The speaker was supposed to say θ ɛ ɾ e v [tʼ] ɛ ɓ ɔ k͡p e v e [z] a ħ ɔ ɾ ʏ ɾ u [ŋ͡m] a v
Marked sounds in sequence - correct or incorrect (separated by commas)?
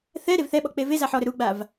incorrect, correct, incorrect